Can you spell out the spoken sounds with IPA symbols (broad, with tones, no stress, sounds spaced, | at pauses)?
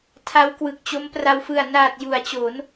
tʰ a˦˥ w k w ɯ˨˩ k̚ t͡ɕ o˦˥ m p r a˧ w f ɯ˨˩ a̯ n aː˨˩ t̚ j u˩˦ a̯ t͡ɕ o˩˦ n